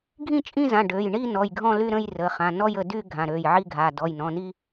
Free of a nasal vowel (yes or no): no